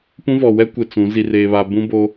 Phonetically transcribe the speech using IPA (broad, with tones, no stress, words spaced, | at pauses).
pũ˦vɔ˨wɛ˦ kʷɪ˨ t͡sũ˨˦ zi˨reː˨βa˨ bũ˦boː˦